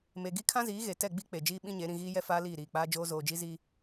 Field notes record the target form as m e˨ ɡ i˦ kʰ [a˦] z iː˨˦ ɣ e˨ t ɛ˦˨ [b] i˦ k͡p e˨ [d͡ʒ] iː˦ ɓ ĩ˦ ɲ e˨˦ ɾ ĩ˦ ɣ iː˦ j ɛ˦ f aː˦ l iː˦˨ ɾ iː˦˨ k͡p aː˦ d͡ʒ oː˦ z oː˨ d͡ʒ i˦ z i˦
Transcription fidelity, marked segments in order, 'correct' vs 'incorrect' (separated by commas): incorrect, incorrect, correct